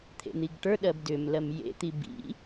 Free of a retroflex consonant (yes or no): no